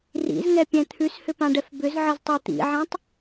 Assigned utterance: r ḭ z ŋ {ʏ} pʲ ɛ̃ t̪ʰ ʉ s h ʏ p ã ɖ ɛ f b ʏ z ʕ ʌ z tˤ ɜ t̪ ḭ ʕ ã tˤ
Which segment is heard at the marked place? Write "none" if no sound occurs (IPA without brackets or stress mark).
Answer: ɛ